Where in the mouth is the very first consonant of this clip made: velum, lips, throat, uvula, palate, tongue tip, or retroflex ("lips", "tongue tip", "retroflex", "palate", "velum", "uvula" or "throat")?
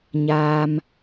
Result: palate